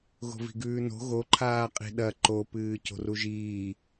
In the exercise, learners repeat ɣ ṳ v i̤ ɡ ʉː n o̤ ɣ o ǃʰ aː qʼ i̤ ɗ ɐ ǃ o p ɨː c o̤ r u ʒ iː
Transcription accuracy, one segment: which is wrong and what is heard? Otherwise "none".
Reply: ṳ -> o̤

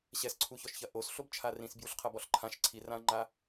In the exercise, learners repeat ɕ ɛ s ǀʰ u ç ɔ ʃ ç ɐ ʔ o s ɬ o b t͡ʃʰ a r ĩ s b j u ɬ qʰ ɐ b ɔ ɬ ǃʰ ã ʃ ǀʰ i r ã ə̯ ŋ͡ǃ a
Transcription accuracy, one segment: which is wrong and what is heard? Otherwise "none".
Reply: none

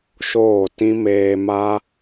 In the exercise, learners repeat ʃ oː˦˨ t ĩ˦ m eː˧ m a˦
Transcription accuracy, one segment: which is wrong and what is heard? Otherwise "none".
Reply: none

